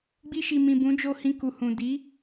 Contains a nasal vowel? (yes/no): yes